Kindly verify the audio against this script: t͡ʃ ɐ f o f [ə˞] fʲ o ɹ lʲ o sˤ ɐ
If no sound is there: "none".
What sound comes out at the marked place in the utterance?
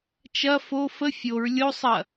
ə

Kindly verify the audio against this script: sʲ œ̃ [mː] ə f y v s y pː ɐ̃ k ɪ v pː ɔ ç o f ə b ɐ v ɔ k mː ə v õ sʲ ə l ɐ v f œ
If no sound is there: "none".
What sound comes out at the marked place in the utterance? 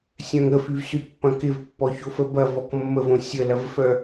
ŋ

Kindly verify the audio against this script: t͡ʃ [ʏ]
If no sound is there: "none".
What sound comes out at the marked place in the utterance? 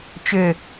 ʏ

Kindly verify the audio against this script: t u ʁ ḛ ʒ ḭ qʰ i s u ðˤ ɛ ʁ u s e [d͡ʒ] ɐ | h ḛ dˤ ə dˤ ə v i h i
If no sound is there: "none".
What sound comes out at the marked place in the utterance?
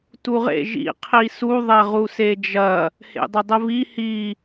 d͡ʒ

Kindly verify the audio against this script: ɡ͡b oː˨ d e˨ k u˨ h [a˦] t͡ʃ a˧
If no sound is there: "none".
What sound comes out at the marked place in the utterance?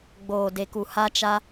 a˧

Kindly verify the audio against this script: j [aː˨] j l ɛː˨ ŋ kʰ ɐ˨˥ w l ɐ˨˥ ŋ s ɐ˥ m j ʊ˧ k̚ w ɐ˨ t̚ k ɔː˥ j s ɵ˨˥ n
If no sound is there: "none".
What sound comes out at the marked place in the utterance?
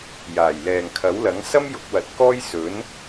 aː˨˩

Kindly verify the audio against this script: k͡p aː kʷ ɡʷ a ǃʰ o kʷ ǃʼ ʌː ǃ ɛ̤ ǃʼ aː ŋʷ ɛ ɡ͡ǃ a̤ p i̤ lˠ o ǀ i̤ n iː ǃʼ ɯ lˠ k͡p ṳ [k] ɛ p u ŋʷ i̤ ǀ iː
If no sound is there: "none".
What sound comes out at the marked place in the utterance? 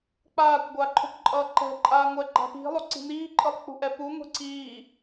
ʔ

